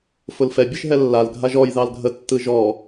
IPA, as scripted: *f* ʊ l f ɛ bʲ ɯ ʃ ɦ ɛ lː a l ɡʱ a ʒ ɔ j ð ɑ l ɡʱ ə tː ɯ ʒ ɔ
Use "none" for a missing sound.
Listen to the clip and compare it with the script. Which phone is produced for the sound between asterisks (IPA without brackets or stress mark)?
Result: f